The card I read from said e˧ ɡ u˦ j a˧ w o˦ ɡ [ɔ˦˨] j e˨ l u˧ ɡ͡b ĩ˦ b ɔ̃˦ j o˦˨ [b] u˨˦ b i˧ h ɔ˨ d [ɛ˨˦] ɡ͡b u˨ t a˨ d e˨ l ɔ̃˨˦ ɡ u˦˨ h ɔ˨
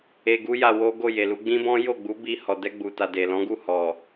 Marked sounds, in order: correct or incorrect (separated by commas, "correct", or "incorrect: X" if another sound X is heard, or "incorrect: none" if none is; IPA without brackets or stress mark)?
incorrect: o˦˨, incorrect: ɡ͡b, incorrect: ɛ˧